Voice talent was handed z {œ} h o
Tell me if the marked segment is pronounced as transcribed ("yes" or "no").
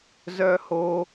yes